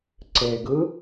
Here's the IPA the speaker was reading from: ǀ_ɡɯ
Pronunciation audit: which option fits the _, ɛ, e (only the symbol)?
e